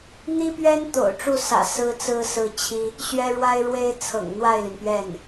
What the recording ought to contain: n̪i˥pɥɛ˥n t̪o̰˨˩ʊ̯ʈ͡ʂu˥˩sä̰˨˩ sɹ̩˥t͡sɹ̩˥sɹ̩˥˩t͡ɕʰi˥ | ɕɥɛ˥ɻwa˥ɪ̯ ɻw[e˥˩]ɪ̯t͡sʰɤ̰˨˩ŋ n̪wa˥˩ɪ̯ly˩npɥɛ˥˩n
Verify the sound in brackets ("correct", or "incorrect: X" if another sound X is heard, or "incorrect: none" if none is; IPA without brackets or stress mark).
incorrect: e˥